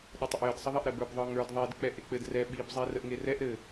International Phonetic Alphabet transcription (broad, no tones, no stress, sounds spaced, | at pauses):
ɗ ə tˤ ə ʔ j ɘ d sˤ ə ðˤ ɛ ʔ ɾ ɛ b ə˞ b ðˤ ə˞ ŋ ə˞ d ðˤ i d k͡p ɛ ʔ e k͡p ɘ d r ɛ ɓ i b zˤ i r ə ʔ ŋ e r ɛ ʔ ɾ ɘ